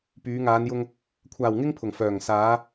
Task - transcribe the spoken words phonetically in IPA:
p yː˨˧ ŋ aː˨˧ n j ʊ˧ ŋ | kʷʰ aː˨ w ŋ ɪ˥ ŋ pʰ ʊ˨ ŋ f œː˨˩ ŋ s aː˨˧

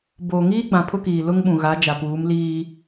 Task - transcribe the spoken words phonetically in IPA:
b oː˨ ŋ iː˦ ɡ͡b ã˨ pʰ ʊ˦ k iː˨ l ʊ˦ ŋ ɓ ũ˨ ɣ a˨˦ d͡ʒ a˨ p uː˨˦ m l iː˦

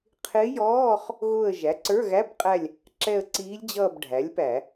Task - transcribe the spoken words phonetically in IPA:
qʰ ɪː˧˥ j ɔː˧˥˧ χ | ɣ ʊ˦˨ ə̯ ʒ æ˩˥ ǀ ə˞˧˥˧ ɣ æ˧˥˧ b qʼ æ˦˨ lʲ | ǁ ɛ˦˨ ə̯ ǀ iː˧˥ lʲ d͡ʑ ʌː˦˨ b ɖʱ æ˩˥ lʲ p æ˧˩˧

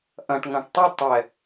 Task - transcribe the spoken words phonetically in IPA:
ʔ ɐ̃ ʈ ŋ ɐ̃ ʈ tˤ ɐ tˤ ɛ

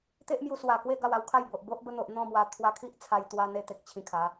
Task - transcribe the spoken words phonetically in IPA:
t̪ e˦ ʔ m j u˧ s w a˨˩ k w e˥˧ ɡ a˥˧ w a˧ w kʰ a˥˧ j b o˨ ʔ b o˦ ʔ b ə˧ n̪ o˨ ʔ n̪ ɔ̃˥˧ m w a˧ t̪ʰ w a˧ kʰ i˦ ʔ t͡sʰ a˧ j t̪ w a˧ n̪ e˧ t̪ e˨ k̚ t͡ɕʰ ĩ˧ kʰ a˨˦

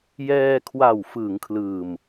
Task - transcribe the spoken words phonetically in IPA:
j ɛː˧ kʰ w a˨˩ w f ɯː˩˦ ŋ kʰ l ɯː˨˩ m

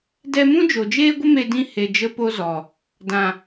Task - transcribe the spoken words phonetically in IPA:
d ɛ˧ m ũ˦ d͡ʒ o˨ d͡ʒ eː˦ ɡʷ ə˦ m e˧ d ĩ˧ h e˨ d͡ʒ ə˦ p o˦ z ɔ˨ | d ã˨

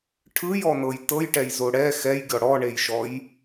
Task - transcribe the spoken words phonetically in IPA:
ʈʰ ɯ j ɔ n ɤ j t ɤ j ʈ ɛ j z o ɽ ɛ x ɛ j ɡʲ ɔ ɽ ɔ ɳ e j ʃ ɔ j

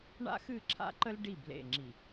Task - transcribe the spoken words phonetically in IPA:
ɳ a̰˦ x ɨ˦˨ ǁʰ a̰˦ ǃ ə˦ l ɖ i˦˨ b l ḛ˦˨ ŋ͡ǁ i˨

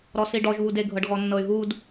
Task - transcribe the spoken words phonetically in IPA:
ɾ ɔ s i ɖ ɔ ʒ β u d e ɡʱ ɤ ɖ ɣ ɔ nː ɤ y̯ ɣ u d

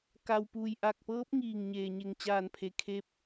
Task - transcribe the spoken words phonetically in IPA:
k a˩ w p uː˩ j ʔ a˧˩ k̚ p ɤː˧˥ p̚ ŋ iː˧˩ ŋ ɲ eː˩ ɲ e˧˩ ŋ t͡ɕ aː˧˩ n pʰ e˧˩ kʰ eː˧˥ p̚

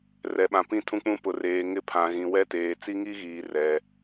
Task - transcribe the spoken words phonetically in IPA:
r ɛ˨ ɓ ã˨ p ĩ˦ tʰ ũ˦ k͡p ũ˦ p ʊ˨ r eː˨ ŋ ɪ˦ pʰ ã˨ ɣ ĩ˨ w ɛ˦ t eː˨ t͡s i˦ ŋ i˦ ɣ iː˨ r ɛ˨

